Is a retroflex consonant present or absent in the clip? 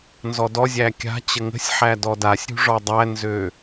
present